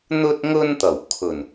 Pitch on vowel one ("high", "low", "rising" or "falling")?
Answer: high